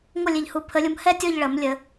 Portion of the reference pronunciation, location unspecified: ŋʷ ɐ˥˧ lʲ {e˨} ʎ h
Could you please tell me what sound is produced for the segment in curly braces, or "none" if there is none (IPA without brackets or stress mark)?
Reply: e˨